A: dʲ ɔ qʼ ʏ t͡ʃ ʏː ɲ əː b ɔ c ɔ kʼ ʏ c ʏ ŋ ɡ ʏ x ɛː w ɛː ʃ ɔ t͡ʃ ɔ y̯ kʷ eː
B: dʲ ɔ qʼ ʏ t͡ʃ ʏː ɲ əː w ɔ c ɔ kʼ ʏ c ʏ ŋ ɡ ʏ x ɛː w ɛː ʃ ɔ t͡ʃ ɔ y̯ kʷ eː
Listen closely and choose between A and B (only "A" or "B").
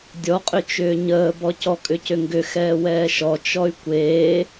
A